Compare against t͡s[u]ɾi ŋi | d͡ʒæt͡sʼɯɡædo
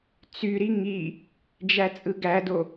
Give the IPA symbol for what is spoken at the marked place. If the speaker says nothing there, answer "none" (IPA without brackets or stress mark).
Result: y